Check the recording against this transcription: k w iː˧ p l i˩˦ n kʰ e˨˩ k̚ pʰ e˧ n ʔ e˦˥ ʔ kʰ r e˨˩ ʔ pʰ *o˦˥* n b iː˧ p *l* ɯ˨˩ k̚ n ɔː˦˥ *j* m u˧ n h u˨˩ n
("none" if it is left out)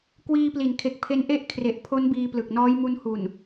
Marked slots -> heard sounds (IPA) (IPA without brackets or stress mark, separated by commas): o˦˥, l, j